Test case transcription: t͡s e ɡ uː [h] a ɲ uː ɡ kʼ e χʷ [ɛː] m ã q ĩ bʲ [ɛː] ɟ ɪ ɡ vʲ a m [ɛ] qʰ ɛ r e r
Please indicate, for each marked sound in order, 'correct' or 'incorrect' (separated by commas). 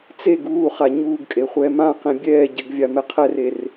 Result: incorrect, correct, correct, correct